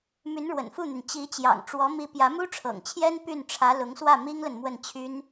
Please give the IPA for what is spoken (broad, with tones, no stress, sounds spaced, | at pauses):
m y˧˥ n ɻ w ə̰˨˩ n f u˥˩ n̪ y˩ n t͡ɕ i˧˥ t͡ɕ j ɑ̰˨˩ ŋ ʈ͡ʂ w ɔ˧˥ m i˧˥ p j ä˧˥ m u˥ ʈ͡ʂʰ ɤ̰˨˩ ŋ t͡ɕʰ j ɛ˥ n p y˥˩ n ʈ͡ʂʰ ä˧˥ l ʊ˧˥ ŋ s w ä˥˩ m i˥ ŋ l ə˨ n m w ə˥˩ n t͡ɕʰ y˥ n